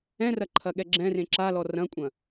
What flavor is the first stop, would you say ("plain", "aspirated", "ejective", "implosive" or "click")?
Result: click